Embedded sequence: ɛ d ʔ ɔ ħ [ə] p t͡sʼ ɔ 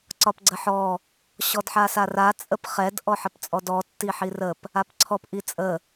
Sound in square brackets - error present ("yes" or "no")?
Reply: no